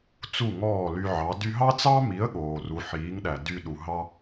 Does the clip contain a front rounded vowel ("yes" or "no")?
yes